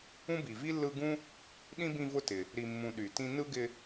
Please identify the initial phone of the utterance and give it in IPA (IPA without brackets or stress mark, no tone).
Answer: ũ